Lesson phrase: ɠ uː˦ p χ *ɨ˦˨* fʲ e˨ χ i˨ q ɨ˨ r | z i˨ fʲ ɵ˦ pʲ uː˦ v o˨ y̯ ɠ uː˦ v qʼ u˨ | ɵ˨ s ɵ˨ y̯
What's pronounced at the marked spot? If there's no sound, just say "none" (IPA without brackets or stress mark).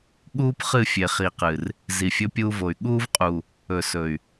ɨ˦˨